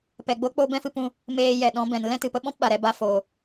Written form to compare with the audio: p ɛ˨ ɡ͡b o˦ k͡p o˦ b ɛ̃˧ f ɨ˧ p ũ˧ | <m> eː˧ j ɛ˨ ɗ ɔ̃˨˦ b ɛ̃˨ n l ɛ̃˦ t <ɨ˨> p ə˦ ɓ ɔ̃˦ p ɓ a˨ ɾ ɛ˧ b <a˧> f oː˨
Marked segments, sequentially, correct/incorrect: correct, correct, correct

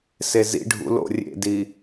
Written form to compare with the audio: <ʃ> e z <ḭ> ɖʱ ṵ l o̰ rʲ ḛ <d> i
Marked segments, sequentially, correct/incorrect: incorrect, correct, correct

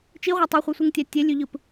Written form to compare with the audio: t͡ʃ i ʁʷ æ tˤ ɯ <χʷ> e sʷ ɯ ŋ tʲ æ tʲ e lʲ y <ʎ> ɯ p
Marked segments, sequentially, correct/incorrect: correct, correct

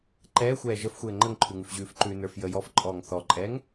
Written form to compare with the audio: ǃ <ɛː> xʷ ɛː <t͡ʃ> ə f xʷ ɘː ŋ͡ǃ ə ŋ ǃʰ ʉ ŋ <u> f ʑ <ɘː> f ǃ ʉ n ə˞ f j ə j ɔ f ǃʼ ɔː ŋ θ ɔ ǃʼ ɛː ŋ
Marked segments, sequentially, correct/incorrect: correct, incorrect, incorrect, incorrect

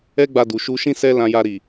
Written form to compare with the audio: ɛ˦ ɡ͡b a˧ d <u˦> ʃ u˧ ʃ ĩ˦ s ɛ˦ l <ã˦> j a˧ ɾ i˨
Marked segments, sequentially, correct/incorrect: incorrect, incorrect

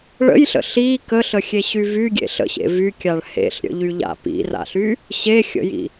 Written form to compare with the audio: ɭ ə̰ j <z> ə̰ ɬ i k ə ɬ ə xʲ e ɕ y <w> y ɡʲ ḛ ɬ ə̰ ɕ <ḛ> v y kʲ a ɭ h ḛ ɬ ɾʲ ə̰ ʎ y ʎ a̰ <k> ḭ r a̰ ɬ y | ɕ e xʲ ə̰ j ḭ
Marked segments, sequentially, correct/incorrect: incorrect, incorrect, correct, incorrect

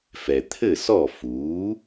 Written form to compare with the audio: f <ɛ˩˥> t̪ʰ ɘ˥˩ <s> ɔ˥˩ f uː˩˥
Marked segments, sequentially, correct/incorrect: incorrect, correct

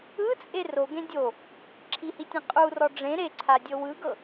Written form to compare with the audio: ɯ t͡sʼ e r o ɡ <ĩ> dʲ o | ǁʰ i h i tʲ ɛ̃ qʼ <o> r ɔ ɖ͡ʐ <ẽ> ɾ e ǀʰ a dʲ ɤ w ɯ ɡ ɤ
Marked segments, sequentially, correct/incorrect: incorrect, incorrect, correct

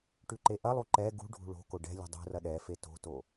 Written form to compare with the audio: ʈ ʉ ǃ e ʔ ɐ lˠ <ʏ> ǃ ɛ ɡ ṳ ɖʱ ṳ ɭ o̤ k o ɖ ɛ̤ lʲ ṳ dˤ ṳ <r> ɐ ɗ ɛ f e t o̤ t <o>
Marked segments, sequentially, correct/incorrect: incorrect, correct, correct

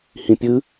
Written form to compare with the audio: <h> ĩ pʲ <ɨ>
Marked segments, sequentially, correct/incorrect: correct, correct

